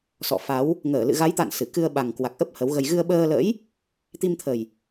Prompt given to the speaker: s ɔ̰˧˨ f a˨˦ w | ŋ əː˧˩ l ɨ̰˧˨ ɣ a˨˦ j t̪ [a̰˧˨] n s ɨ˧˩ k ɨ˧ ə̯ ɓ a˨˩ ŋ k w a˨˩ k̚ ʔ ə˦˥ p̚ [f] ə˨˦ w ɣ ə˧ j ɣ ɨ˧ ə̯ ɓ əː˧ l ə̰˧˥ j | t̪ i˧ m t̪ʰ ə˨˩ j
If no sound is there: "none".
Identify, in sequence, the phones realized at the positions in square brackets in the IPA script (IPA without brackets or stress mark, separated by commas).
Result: a̰˧˨, h